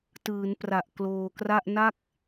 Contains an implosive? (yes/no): no